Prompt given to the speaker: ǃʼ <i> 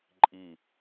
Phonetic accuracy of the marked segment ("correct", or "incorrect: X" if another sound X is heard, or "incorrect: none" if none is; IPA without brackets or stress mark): correct